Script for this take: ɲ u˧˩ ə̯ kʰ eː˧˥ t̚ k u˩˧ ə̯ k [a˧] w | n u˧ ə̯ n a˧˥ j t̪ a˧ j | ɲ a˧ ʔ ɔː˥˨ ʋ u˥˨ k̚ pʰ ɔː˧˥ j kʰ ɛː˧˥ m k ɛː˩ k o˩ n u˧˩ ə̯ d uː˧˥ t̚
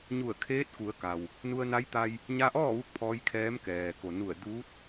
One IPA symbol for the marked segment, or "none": a˩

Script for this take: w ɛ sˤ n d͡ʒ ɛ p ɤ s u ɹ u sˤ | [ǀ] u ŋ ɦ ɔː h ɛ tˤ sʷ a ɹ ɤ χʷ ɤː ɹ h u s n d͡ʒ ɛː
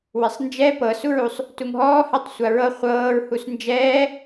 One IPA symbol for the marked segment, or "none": t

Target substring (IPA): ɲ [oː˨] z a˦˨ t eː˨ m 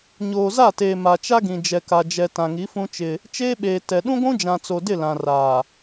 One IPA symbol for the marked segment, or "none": oː˨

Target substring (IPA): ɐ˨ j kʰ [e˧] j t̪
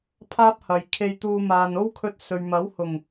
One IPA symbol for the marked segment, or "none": e˧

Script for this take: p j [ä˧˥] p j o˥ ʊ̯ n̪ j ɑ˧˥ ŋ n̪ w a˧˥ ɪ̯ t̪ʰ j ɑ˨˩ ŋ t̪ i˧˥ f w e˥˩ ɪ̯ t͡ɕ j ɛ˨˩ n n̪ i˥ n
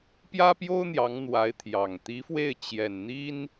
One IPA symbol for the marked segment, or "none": ä˥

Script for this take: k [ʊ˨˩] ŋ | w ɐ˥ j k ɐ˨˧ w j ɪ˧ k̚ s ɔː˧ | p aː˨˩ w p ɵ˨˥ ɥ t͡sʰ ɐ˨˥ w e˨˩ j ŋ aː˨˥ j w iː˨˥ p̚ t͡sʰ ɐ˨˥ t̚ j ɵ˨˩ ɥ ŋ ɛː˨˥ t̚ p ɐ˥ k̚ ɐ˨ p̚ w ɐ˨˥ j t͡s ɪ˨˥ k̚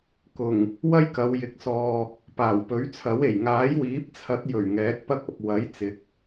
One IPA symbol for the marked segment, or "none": ʊ˨˩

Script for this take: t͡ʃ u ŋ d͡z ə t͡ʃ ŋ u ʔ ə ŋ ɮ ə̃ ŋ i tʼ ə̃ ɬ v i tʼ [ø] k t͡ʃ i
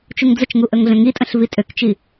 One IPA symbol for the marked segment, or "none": ø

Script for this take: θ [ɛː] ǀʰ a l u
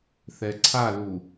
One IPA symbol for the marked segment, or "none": ɛ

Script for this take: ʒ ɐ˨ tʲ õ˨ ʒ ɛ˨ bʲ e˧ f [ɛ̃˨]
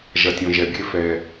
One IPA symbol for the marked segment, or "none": ɛ˨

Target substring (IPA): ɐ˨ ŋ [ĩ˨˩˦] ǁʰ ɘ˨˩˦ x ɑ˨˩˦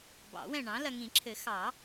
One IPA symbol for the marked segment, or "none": ĩ˨˩˦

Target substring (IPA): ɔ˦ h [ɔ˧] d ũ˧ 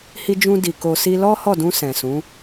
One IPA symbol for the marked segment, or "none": ɔ˦˨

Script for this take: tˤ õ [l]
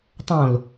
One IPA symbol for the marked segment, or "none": l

